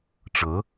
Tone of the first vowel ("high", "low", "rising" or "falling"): rising